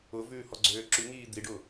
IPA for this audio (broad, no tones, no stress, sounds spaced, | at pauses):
ʊ v ʉː h ɔ ɡ͡ǀ øː ǁ ʉ ŋ iː d̪ i ɖ ʊ